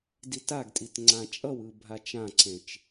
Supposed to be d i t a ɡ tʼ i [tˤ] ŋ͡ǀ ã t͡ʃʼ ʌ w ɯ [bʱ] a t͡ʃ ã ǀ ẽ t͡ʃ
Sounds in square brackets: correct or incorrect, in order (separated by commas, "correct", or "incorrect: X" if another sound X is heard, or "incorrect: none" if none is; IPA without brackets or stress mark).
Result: incorrect: t, correct